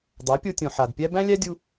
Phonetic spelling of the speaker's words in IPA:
dˤ a˨˦ pʲ o˧ tʲ õ˨ ħ a˨ d pʲ æ˦ b æ̃˦ lʲ æ˦ dʲ u˧

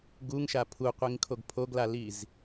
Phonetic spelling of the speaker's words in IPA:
ɡ u ŋ ʃ a pʰ u qʷ i ŋ kʰ o ɡ pʰ o ɡ l a l i z

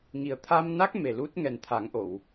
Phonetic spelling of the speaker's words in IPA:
ŋ i˨˩ ə̯ t̪ʰ a˧ m n a˦˥ k̚ m e˨˩ l u˦˥ t̚ ŋ ɛ˨˩ n t̪ʰ a˨˩˦ ŋ ʔ o˨˩˨ w

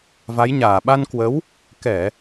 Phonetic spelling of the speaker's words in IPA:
v a˨˦ j ɲ aː˧˩ ɓ a˧ n k w ə˨˦ w | k ɛ˧˩˨

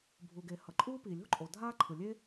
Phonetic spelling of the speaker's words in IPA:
bʱ u˩ ɡ e˩ h ʌ˩ ǃʼ uː˥ p i˩ lʲ o̤˥ ǃʼ o˩ dʱ aː˥ ǃʰ ɯ˩ lʲ e˥

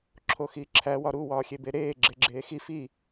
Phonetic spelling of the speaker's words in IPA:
ǁʰ o x i ǁʰ æ w ɒ ɾ u w ɒː xʲ e b e ɾ eː ɡ͡ǁ e ɡ͡ǁ eː x i f i

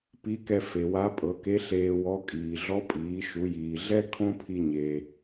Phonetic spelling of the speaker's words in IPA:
p i˧˥ k ɛ˧ f e˩ w a˧˥ pʼ ɤ˩˧ k e˧˥ ɬ eː˧ w ɔ˧˥ kʼ iː˩ ɮ ɔ˧˥ pʼ iː˩˧ ʃ u˩˧ j iː˩ ɮ ɛ˥ kʰ õ˥ pʰ i˧ ɲ e˩

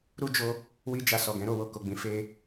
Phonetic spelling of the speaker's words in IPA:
ɾ u˦ d͡ʒ o˧ | w i˦ d͡ʒ a˧ s ɔ˨ ɡ ɛ̃˨˦ ɾ o˦˨ w o˧ k o˨ ɡ͡b ĩ˨˦ f e˧

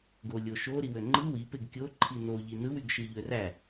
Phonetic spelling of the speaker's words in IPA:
ɡ o lʲ o ʃ o ɾ i w ø ŋ͡ǃ ɯ w i p e ɡ kʲ o ǃʰ i n o ʎ i n ɯ w y ɡ ʃ ɯ ʎ ø r æ

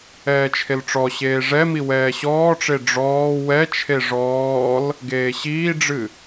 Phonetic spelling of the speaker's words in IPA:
ɛː t͡ʃʰ e l ʈ͡ʂ ɔ ɕ eː ʐ ɛ m i w ɛː ɕ ɔː ʈ͡ʂ e ɖ͡ʐ ɔː w ɛ t͡ʃʰ e ʐ ɔː l | ɡ eː ɕ iː ɖ͡ʐ ɨ

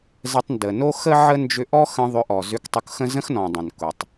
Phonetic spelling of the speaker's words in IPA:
z ə˧ tˤ n d ə˨ n o˦ x ə˦ ʕ ə˦ n d͡ʒ ʏ˧ ʔ ɔ˦ x ə̃˧ ðˤ ʏ˧ ʔ ɔ˨ z ʏ˧ k tˤ ʊ˧ k x ə̃˦ z ə̃˦ x n ɔ̃˨ dˤ ə̃˨ n k ʊ˨ tˤ

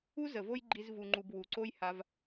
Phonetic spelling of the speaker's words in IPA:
u˦ z ə˨ v o˦ j ɡ͡ǃ i˧ z v u˨ ŋ͡ǃ u˨ b w u˨ ǀ o˦ j h a˧ v

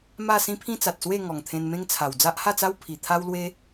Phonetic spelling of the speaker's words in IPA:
m a˥˧ s ĩ˦ pʰ ĩ˦ t͡s a˨ t̚ s w e˥˧ ŋ ɔ˨˩ ŋ t̪ʰ ẽ˧ n m ẽ˦ ŋ t͡sʰ a˨˩ w d͡z a˦ ʔ h a˥˧ t͡s a˦ w pʰ i˨˩ t̪ʰ a˦ w l w e˦

